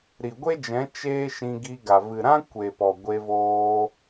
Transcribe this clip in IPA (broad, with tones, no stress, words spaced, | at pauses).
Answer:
ɾi˨ɡʷe˦d͡ʒɛ̃˨˦ t͡ʃeː˦ʃĩ˧ ɡi˧ɡa˨ vɨ˨ɾã˦kʷe˨ pɔ˨ɡʷe˧voː˧